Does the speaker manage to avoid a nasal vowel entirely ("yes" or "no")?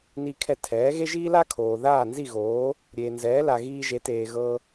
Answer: yes